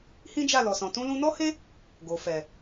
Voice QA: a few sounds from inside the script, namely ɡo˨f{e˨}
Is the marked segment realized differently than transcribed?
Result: yes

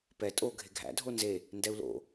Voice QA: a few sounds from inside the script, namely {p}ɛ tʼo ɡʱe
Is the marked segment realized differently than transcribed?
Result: no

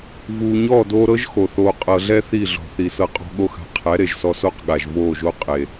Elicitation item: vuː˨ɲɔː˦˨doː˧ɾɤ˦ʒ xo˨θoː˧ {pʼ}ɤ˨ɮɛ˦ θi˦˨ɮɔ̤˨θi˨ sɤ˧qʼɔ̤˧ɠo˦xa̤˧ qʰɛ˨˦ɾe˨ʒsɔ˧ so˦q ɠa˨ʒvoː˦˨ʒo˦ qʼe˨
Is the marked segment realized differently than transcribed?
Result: yes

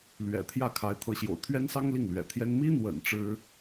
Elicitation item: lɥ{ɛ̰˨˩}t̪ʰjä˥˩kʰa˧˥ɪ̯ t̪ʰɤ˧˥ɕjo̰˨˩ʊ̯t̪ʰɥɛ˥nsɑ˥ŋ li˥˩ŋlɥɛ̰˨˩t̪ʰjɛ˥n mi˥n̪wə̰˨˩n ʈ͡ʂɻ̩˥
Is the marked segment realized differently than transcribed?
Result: no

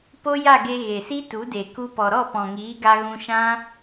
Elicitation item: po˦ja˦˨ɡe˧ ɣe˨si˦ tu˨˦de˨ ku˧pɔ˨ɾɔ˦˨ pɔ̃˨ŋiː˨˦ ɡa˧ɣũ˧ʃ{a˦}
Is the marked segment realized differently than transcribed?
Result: yes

